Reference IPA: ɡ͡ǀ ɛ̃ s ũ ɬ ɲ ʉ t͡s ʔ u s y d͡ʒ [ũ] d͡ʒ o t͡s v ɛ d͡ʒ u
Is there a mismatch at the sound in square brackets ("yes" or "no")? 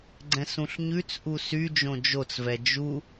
yes